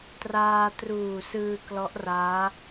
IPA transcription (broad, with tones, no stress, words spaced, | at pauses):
traː˧ truː˨˩sɯː˧ klɔ˦˥ʔraː˦˥